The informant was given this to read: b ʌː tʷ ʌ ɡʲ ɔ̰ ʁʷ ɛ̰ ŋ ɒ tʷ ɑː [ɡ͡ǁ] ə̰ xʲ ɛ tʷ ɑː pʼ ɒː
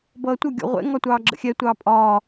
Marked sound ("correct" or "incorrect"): correct